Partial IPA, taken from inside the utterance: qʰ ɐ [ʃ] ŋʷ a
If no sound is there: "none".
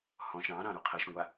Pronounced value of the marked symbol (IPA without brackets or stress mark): ʃ